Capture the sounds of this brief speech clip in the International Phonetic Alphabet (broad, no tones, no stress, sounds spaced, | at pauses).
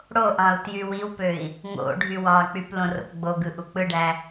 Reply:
ɽ o ʔ ɑ̃ u̯ t j y w i w p ø i̯ | ŋ o̰ ɖʱ y w ɑ k͡p y p l õ r o̰ p ɡ͡b o ɡ ɯ ʔ u k͡p ɯ ɖ æ